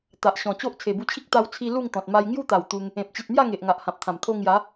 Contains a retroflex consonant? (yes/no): no